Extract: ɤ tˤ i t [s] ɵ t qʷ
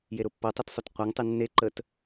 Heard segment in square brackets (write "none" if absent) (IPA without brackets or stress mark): sˤ